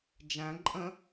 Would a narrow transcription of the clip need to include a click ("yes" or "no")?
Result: yes